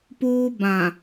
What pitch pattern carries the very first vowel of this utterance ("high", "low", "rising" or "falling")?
high